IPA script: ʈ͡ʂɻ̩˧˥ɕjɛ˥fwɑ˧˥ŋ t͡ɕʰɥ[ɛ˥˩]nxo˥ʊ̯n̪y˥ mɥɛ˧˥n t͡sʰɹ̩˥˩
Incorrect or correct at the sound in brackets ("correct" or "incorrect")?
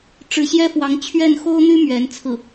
correct